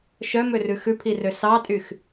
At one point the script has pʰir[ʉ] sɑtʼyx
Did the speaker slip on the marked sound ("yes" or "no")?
yes